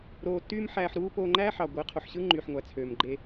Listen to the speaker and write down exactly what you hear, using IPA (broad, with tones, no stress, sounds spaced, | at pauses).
ɾ oː˧ tː yː˦ m ħ æː˧ ħ ɾ uː˦ p oː˧ ŋ͡ǃ æː˦ ħ ɑ˨ ɡʷ e˨˦ qʰ o˨ ħ ɕ ɯ˦ ŋ͡ǃ yː˨ ħ ŋʷ æ˨ t͡sʰ øː˨ m ɡ͡ǃ e˧